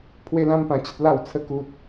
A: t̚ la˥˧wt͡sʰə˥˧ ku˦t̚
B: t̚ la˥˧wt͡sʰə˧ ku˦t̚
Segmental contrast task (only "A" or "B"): A